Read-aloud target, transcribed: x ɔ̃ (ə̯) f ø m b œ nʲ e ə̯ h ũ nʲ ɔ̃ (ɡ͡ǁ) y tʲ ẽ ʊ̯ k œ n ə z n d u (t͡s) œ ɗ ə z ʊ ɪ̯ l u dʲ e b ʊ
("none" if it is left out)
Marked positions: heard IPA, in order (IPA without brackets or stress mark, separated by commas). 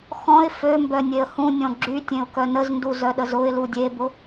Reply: ɪ̯, ɡ͡ǁ, z